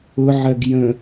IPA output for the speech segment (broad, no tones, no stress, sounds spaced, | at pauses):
ʊ ʕ ɜ ɡ j ə̃